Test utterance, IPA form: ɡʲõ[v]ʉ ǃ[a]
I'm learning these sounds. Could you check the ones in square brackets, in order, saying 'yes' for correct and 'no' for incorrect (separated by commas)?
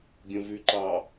yes, no